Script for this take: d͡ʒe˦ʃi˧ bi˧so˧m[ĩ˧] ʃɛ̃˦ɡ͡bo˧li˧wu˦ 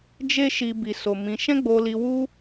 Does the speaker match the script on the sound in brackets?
yes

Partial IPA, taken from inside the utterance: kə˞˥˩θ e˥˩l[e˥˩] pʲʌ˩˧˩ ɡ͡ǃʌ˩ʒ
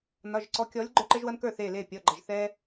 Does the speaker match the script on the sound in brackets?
yes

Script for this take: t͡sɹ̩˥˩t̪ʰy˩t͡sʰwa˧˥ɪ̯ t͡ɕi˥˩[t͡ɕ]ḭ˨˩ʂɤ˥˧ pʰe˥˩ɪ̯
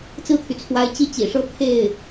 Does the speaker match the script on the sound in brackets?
yes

